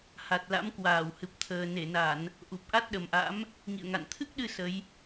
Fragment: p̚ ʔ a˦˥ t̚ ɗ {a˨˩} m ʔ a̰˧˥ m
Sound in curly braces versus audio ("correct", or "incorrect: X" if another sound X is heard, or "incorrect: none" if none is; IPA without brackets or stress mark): incorrect: ə˨˩